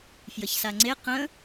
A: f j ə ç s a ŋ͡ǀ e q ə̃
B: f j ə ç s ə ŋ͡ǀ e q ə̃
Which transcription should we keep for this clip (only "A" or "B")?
A